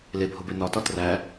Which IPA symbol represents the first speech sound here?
l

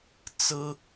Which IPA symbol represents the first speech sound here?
t͡s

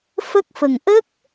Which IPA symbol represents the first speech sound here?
f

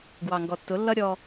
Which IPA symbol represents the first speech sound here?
ɡ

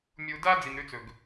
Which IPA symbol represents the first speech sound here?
mʲ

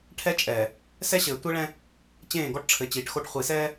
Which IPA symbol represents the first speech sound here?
ʈʰ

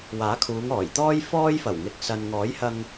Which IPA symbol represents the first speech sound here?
w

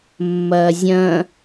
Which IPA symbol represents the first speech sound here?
mː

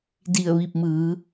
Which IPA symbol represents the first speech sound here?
d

